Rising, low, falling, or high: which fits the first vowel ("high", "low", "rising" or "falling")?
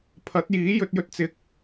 rising